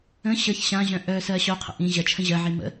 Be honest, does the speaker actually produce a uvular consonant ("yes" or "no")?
yes